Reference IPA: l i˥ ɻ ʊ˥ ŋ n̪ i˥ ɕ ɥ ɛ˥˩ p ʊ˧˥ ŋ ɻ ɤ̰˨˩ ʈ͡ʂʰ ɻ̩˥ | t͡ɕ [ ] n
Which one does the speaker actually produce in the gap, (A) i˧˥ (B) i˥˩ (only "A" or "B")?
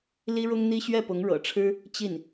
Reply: B